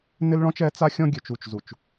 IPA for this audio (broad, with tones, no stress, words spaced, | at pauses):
nɪ˦lɭɔ̃˦t͡ʃɛ˨˦ t͡sa˦xʲɔ̃˦ ɡʲø˨t͡ʃu˨t͡ʃzu˨t͡ʃ